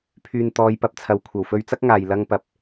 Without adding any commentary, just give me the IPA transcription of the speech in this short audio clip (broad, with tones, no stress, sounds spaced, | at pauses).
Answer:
pʰ yː˨ n t̪ ɔː˨˧ j p ɐ˨ p̚ t͡sʰ ɐ˨˧ w kʷʰ ɐ˨˩ w f ɵ˧ ɥ t͡s ɐ˥ k̚ ŋ aː˨ j l ɐ˧ ŋ p ɐ˨ p̚